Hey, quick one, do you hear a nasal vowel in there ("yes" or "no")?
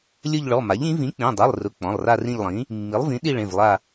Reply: yes